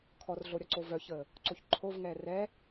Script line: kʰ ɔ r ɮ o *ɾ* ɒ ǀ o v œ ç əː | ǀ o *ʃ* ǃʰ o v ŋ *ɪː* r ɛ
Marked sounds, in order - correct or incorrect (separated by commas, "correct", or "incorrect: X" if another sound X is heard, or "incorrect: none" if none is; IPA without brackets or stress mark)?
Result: incorrect: ɾʲ, incorrect: ç, incorrect: ɛː